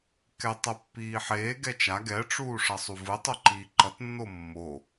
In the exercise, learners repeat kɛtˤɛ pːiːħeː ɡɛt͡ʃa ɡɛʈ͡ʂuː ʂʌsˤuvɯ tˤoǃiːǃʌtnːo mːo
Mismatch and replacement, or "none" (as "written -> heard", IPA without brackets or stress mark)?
none